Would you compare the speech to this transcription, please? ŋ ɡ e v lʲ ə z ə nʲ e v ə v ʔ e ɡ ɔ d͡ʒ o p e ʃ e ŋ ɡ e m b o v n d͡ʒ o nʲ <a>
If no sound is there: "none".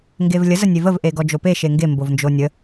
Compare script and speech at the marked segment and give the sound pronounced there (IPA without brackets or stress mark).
ə